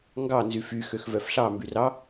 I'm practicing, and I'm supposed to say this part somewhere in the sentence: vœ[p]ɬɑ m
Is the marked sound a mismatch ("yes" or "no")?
yes